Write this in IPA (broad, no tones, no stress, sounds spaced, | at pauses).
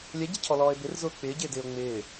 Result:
lʲ ɛ ɟ e cʰ ɔ l ɔː e̯ b ɪ r z ʊː k͡p ɪː ɟ ɪː d ɪː o̯ ŋ͡m ɪː